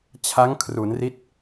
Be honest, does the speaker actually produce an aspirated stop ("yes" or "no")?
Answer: yes